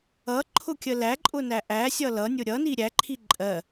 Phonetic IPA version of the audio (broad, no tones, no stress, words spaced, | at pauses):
ʌǃʰʊkʲə læǃʼʊnæ ʔæsʲʌ lʌnʲʊ ɾʲʌni ɾʲæǃʰi ǃʼɜ